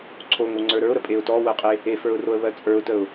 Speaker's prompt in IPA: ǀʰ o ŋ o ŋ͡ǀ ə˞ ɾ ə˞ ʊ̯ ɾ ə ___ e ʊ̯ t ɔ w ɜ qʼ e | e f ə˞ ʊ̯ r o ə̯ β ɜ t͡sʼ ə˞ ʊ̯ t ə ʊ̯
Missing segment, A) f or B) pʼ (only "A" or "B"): B